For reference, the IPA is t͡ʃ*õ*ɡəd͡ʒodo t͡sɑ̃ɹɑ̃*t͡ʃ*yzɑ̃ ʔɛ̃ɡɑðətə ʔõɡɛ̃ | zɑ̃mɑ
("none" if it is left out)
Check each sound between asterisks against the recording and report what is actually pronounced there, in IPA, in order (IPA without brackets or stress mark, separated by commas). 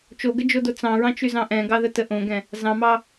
o, t͡ʃ